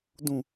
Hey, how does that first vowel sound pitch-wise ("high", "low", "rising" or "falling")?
falling